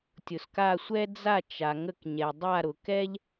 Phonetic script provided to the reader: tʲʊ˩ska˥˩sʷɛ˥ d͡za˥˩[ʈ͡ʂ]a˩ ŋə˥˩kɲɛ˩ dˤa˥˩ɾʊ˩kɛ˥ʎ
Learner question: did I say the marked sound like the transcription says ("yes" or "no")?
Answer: no